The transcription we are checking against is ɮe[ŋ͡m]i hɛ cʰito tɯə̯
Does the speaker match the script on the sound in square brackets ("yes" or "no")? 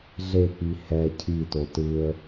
no